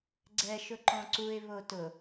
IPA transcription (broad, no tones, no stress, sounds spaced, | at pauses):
ɡ͡ǀ ɛ ʃ ʊ ǃ ɔ̃ ǀ u ɪ̯ β o t ʊ